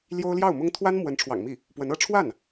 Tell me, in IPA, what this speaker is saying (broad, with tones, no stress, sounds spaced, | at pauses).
l j o˥ ʊ̯ l j ɑ˥˩ ʊ̯ m ʊ˥ ŋ t̪ʰ w a˥ n m w ə˧˥ n ʈ͡ʂʰ w ɑ̰˨˩ ŋ m i˥˩ | p w ə˧˥ n ɤ˥ ʈ͡ʂʰ w a˥˩ n